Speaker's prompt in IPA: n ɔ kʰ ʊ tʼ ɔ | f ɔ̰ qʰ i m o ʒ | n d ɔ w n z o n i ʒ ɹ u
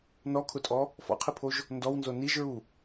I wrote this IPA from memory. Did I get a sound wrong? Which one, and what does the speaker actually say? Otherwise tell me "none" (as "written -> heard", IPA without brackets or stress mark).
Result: m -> pʰ